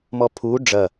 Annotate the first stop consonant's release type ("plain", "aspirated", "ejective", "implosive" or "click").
aspirated